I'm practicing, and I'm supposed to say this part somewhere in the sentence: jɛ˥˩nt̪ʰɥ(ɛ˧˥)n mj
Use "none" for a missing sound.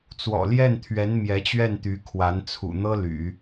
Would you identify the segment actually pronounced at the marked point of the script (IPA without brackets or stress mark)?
ɛ˧˥